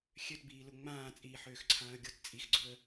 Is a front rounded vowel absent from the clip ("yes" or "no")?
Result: no